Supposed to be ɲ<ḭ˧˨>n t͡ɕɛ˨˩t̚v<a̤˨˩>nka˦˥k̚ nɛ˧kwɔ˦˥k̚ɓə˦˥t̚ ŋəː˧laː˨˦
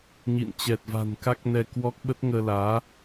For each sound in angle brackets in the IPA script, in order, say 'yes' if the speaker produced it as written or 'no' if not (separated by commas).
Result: yes, yes